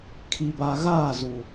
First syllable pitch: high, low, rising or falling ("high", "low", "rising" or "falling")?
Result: low